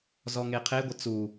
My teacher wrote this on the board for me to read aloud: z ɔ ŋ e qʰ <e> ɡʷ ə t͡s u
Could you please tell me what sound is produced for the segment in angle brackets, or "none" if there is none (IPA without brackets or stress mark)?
e